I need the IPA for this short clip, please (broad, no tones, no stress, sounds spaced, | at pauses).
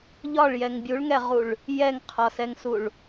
ʎ ɒ ɭ j ɛ ŋ bʲ u ɭ ŋ ɛ ʁ u ɭ | j ɛ ŋ qʰ ɒ s ɛ ŋ s u ɭ